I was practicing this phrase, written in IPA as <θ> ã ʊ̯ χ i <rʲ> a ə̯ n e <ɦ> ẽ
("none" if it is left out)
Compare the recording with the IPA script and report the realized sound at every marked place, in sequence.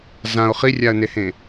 z, rʲ, h

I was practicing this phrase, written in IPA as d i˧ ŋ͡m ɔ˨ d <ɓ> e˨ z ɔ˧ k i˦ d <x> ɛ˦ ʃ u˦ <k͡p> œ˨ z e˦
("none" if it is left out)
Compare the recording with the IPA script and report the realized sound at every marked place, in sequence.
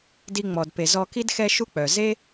p, x, k͡p

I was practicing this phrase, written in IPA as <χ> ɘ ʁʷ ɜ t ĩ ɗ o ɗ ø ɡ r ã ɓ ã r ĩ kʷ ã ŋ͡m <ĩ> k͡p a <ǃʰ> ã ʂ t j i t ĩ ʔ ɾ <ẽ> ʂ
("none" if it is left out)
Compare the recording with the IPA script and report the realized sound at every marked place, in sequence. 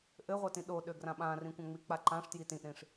ʔ, i, ǃ, ĩ

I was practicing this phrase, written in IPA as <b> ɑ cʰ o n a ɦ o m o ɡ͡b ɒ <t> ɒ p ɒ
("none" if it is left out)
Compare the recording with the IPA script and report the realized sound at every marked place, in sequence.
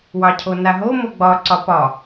w, ǀ

